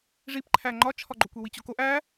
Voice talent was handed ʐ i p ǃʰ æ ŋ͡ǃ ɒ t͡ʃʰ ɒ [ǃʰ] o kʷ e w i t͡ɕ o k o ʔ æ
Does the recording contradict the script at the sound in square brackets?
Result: yes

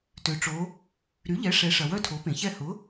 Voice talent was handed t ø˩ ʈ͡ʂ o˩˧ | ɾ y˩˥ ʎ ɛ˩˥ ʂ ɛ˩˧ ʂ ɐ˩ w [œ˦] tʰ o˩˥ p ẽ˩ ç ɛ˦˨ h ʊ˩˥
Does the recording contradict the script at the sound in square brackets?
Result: no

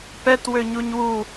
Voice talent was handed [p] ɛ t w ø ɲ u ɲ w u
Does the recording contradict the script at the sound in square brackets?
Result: no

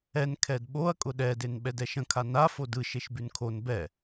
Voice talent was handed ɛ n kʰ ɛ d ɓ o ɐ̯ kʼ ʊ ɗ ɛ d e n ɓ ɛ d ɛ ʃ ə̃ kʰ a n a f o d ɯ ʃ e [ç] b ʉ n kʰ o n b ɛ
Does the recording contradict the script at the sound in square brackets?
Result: yes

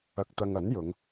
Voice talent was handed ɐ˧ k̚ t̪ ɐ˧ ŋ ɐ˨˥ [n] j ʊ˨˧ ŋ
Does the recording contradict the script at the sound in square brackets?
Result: no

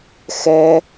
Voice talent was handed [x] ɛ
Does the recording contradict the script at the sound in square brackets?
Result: no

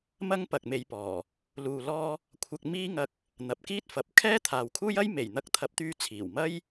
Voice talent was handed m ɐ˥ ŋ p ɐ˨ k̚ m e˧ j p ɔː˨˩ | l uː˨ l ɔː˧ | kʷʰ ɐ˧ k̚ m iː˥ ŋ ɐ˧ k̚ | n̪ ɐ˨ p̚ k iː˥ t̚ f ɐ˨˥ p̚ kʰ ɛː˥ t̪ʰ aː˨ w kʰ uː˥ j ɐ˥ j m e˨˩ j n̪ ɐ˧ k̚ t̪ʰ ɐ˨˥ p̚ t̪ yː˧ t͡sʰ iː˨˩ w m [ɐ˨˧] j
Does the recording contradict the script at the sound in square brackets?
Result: yes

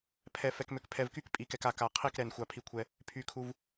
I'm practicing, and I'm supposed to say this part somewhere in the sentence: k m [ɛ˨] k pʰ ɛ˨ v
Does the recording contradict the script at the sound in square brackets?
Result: yes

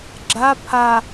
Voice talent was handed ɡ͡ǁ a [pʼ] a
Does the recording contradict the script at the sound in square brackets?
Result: yes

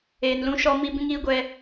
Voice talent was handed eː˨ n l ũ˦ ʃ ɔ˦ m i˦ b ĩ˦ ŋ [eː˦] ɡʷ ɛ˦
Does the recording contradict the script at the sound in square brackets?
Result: yes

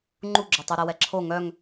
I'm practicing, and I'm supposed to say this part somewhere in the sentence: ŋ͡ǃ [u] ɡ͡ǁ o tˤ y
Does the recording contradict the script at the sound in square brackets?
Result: no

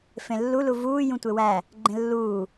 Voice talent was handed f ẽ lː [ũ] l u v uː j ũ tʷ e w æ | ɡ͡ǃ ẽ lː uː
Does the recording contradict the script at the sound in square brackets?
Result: yes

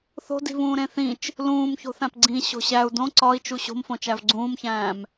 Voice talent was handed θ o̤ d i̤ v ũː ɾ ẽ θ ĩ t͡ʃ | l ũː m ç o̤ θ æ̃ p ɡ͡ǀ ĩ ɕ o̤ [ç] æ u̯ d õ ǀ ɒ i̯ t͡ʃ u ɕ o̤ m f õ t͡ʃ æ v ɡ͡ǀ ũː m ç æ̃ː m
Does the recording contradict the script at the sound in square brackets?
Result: yes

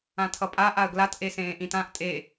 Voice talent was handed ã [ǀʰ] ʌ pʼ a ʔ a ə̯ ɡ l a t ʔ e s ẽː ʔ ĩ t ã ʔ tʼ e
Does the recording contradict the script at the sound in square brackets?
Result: yes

